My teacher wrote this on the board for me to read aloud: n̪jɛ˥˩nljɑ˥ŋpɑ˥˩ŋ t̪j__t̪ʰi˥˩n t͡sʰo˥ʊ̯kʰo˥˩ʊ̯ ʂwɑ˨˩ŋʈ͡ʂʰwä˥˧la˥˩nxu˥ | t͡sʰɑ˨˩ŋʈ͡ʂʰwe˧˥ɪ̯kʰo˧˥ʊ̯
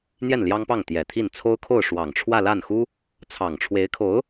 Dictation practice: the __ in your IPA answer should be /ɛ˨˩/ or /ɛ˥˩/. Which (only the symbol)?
ɛ˨˩